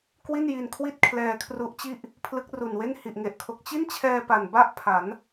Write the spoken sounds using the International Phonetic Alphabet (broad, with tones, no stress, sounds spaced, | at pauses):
k w i˥˩ n j i˧ n kʰ w i˥˩ t̚ kʰ l ɛː˧ kʰ r u˦˥ ʔ t͡ɕ i˥˩ ʔ | pʰ l ɯ˦˥ k̚ r u˨˩ n w e˥˩ n h i˨˩ ʔ ŋ e˨˩ ʔ kʰ o˨˩ k̚ t͡ɕ i˥˩ n t͡ɕʰ ɛː˧ p a˨˩ n b a˥˩ ʔ pʰ a˩˦ n